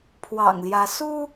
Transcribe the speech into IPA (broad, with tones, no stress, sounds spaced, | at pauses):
pʰ w ɑ̰˨˩ ŋ l j ä˨˦ s u˦